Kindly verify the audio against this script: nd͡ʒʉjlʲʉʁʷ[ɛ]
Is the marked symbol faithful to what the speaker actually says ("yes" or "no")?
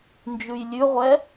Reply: yes